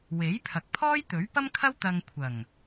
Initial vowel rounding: unrounded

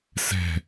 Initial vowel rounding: unrounded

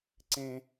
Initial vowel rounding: unrounded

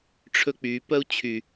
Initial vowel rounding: rounded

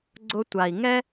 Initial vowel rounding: rounded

